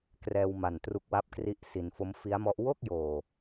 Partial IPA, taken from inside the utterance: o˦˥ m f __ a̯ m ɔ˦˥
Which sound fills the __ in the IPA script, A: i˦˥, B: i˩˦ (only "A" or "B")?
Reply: A